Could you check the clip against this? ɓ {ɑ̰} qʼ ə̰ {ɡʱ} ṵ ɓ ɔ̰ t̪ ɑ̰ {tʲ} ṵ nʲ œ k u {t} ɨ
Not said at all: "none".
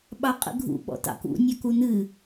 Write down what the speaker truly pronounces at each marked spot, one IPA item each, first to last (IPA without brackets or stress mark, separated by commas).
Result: ɑ, ɡʱ, k, n̪